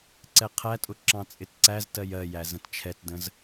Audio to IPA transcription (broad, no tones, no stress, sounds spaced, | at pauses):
ǀ ɛ qʰ æ tʼ ʊ ǁ ɑ̃ t͡sʼ ɪ t ǀ æ z t ɜ j ɜ j æ z ə̃ t t͡ʃʰ ɛ t d ə̃ z